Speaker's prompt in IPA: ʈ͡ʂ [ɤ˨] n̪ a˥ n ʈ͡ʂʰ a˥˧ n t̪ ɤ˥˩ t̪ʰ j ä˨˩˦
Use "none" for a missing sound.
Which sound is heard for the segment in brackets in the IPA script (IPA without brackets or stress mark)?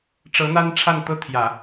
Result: ɤ˧˥